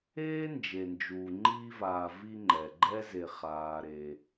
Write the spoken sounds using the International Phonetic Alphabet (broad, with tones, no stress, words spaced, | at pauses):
eː˥nd͡ʒe˩nd͡ʒuː˩ ŋ͡ǃiː˦vaː˨vi˦ŋ͡ǃɛ˩ ɡ͡ǃɛ˥ ze˨χaː˨ɾe˨